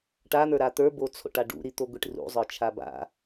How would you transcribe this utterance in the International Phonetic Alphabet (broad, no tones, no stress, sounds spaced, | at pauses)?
ʈ a n̪ ə˞ ɾ a t̪ ə˞ b o t͡sʰ o̰ ʈ a ɖ ṵ ɾ i t̪ o ɡʷ i ʈ r ṵ zˤ ə˞ t͡ʃʰ a b a̰